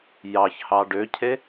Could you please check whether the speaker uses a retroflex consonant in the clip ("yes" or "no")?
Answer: yes